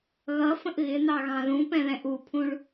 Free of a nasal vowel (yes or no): no